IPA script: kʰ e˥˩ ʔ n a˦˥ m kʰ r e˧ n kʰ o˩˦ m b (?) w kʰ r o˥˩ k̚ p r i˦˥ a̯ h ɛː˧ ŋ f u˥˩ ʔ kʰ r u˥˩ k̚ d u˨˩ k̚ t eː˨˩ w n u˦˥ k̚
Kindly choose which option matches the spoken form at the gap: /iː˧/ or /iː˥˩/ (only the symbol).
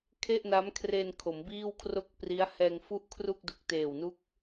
iː˥˩